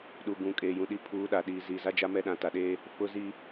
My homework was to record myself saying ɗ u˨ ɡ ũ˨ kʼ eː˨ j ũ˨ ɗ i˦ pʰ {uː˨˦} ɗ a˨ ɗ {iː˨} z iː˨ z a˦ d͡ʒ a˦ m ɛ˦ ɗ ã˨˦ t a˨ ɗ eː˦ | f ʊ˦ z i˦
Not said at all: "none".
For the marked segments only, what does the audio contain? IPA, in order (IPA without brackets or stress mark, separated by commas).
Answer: uː˨˦, iː˨